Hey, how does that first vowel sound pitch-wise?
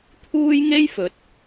high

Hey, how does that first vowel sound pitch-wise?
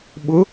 rising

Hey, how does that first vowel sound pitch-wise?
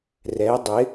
rising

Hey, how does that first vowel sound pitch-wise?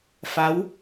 rising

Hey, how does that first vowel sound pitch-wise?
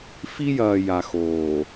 high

